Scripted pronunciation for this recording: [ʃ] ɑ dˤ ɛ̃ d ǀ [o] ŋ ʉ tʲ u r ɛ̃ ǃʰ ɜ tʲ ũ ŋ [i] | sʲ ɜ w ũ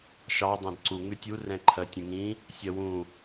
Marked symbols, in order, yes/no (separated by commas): yes, no, no